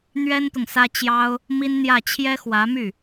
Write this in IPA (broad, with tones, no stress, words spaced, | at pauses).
n̪ɥɛ˥nt̪ʊ˨ŋsä˥ t͡ɕjɑ˥ʊ̯ | mi˥nn̪jä˥˩ t͡ɕʰjɛ˥xwä˧˥my˥˩